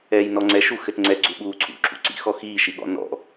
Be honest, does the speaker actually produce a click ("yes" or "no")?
yes